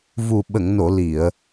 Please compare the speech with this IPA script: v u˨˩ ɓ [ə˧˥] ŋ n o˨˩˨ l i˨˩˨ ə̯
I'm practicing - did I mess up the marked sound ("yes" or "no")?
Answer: yes